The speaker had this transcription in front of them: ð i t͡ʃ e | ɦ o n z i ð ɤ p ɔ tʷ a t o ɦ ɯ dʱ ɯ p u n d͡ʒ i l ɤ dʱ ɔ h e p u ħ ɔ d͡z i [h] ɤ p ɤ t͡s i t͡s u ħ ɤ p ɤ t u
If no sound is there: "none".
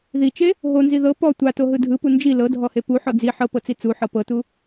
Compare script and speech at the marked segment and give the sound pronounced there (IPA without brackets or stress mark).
ħ